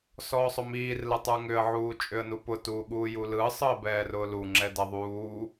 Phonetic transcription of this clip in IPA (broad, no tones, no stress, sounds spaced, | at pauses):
s ɔː sˤ ʊ m iː r l ɯ tˤ ə˞ ŋ ʏ ə̯ ʕ uː t͡ʃʼ ʏ ə̯ n u p ʊ t uː ɠ uː j u l ɯ sˤ ɯ ə̯ b ɛː r ʊː l u ŋ͡ǁ ɛ d ɛ ðˤ uː